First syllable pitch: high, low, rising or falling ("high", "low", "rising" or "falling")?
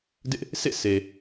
high